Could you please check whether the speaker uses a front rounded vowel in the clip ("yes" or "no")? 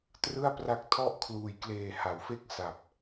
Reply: no